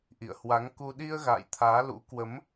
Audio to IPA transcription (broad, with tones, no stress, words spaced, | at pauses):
ʔḭ˧˨ə̯hwa˨˦ŋku˧ ɗi˧ə̯ɣa̰ː˧˨j t̪ʰaː˨˦lṵ˧˥ kwə˨˦m